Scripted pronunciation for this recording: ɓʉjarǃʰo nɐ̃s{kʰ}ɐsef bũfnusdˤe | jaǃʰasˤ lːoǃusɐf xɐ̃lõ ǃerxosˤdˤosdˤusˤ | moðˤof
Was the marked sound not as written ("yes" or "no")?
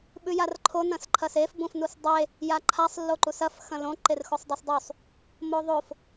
yes